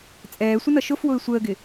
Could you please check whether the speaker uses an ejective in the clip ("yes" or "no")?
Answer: yes